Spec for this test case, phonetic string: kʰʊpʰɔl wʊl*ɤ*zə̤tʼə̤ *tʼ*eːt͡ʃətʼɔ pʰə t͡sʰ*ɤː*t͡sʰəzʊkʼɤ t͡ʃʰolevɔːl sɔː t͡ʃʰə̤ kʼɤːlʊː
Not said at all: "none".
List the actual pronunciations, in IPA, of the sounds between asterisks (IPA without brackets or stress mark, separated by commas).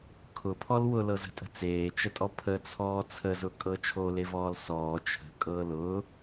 ɤ, t͡s, ɔː